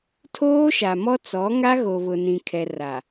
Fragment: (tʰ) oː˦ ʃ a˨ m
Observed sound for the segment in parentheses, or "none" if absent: tʰ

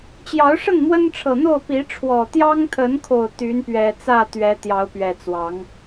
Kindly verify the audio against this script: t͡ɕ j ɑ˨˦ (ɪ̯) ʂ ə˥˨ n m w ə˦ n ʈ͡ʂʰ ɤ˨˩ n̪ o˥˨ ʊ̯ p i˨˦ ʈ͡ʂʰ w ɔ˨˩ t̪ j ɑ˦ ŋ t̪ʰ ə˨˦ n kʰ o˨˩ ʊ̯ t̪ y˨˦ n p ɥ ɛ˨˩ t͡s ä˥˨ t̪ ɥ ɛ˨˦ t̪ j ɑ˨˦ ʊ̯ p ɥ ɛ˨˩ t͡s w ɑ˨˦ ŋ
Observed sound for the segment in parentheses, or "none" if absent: ʊ̯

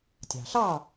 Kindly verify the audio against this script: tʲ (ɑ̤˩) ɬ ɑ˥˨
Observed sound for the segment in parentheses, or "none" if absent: ɑ̤˩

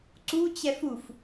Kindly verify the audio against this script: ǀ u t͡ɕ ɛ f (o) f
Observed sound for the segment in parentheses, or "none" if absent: u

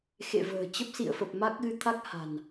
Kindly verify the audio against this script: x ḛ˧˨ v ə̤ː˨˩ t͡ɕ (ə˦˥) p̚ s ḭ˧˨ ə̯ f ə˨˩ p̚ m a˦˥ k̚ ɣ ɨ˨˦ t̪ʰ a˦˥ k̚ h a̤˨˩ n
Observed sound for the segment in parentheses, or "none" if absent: ə˦˥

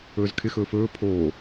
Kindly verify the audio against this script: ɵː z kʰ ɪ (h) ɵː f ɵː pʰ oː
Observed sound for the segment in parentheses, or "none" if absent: x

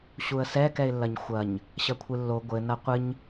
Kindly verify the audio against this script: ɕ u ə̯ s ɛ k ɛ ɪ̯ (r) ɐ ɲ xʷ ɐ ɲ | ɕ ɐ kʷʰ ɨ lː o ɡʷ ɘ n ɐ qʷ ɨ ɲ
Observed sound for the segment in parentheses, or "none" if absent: lː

